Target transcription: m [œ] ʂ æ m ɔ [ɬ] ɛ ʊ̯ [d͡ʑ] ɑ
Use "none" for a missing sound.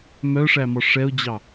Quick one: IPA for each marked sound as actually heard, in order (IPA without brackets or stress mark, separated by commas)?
œ, ʂ, d͡ʑ